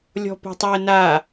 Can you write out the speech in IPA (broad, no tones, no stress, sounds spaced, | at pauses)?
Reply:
lʲ ɔ̤ p o̤ tˤ ɑ ə̯ n a